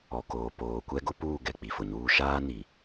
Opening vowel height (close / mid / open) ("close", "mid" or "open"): mid